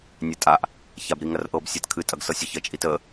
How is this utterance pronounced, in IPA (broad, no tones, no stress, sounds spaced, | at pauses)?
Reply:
nʲ æ tʼ a ʔ | ç a b ɾ i ŋ ɐ r ʔ ɤ b sʲ a t kʰ ɨ tʼ ɐ ɡ s ɤ sʲ ə ç ɐ t͡ʃʼ i t ə